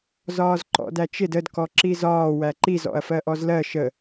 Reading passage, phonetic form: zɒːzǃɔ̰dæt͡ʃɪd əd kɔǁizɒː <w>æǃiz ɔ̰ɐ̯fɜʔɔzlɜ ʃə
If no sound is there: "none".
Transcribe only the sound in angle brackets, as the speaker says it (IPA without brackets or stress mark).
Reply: w